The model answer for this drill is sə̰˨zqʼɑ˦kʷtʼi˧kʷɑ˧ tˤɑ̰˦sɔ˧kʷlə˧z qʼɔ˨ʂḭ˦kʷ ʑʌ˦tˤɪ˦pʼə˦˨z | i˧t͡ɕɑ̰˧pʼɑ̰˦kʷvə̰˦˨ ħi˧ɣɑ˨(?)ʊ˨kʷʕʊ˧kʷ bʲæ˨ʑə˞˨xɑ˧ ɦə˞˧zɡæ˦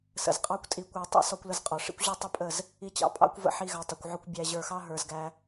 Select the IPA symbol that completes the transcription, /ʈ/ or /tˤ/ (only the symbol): tˤ